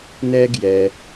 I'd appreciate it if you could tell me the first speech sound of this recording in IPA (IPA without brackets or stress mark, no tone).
n